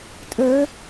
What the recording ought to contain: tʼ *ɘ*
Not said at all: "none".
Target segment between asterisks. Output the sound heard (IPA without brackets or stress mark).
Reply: ɘ